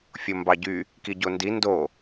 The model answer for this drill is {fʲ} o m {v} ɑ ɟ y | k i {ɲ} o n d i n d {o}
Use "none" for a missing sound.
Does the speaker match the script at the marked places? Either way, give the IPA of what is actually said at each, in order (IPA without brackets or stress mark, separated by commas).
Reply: fʲ, b, ɟ, o